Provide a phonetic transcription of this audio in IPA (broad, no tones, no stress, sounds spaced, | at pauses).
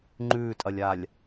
ŋ͡ǃ ʉː tʼ ɐ lʲ a lʲ